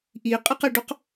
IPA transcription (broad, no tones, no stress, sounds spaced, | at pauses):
ʔ i qʼ ɘ q ɘ ɖ ɵ q